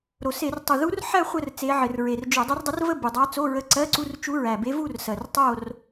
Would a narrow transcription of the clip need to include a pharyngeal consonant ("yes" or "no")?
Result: yes